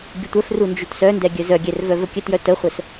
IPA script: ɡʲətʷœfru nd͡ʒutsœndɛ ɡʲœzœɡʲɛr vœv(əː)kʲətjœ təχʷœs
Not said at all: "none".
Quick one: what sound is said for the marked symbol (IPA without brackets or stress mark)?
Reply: ə